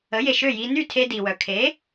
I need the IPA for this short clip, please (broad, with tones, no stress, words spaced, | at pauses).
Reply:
ə˩˥je˩ʃø˥˩ji˧ ny˥˩tʰe˧di˩wœ˩ kʰe˩˥